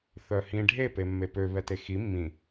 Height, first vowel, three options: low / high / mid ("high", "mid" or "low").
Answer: mid